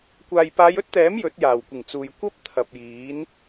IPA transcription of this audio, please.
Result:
kʷ aː˨ j p aː˨˧ j ɵ˥ t̚ t̪ ɛː˨˥ m j ɵ˨˥ t̚ j aː˨˩ w kʷ ɪ˨˩ ŋ t͡s uː˨ j kʷ ɐ˥ p̚ t̪ʰ ɐ˨ p̚ j iː˨˥ n

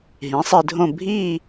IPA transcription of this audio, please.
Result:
ɦ ĩ˩˥ sˤ i˧ dʱ õ˥˧ bʱ i˥˧

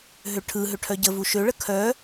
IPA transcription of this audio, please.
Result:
ɦ ø ʈʰ ɯ ɦ ø ʈʰ œ ɟ ə v u ʃ ø ɭ ə kʰ œ

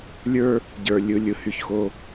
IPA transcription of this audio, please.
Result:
lʲ ə˞˦ | ɟ ə˞˨ lʲ ɯ˨ lʲ ɯ˨ h y˨ ç x o˦

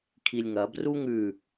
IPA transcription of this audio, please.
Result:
kʰ i lʲ ŋ ɐ b r u ŋ ʉ

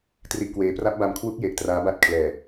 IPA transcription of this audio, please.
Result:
t r i˥˩ ʔ k w eː˦˥ p r a˦˥ p̚ b a˧ m kʰ w u˦˥ k̚ j e˨˩ ʔ t r aː˦˥ b a˥˩ t̚ kʰ l ɛː˨˩

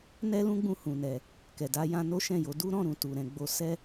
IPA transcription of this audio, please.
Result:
n ɛ˦ l ũ˦ ɡ͡b ũ˧ h ũ˨ n ɛ˨ | k ɛ˨ d a˧ j ã˧ n o˦ ʃ ɛ̃˦˨ j o˨˦ d u˦ ɾ ɔ̃˦˨ ɾ ũ˨ t u˨ ɾ ɛ̃˨˦ ɡ͡b o˧ s ɛ˦

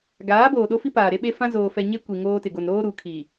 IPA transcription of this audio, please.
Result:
ɡ aː˨˦ b oː˨ ɗ o˦ f i˦ p aː˨ ɾ e˦ ɓ e˦ f ã˦ z oː˨ f ɛ˨ ɲ e˦ kʷ i˨ ŋ oː˦ t ɪ˨ ɡ o˨ n ɾ oː˦ ɾ u˨ kʰ i˨

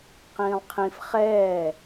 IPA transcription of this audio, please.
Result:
q ĩː lˠ qʰ ĩ f χ ɛː

